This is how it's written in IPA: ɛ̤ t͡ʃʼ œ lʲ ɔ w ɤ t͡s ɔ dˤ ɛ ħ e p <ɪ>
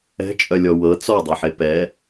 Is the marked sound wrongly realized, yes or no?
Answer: yes